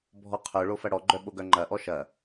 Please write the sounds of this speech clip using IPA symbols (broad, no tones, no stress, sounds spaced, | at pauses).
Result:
bʱ ɔ qʰ œ ɭ o f ɐ ɽ ɔ ɡ͡ǃ œ ɓ o ɡ œ ŋ͡ǃ ɐ ʔ ɔ ʃ ɐ